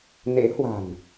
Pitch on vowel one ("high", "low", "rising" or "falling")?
rising